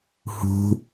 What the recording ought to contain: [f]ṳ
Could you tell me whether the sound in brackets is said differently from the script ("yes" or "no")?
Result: yes